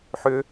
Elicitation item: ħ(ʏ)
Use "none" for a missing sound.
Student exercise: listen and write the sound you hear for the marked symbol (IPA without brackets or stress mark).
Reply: ʏ